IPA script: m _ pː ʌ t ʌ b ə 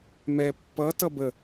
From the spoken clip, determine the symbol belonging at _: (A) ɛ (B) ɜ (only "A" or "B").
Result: A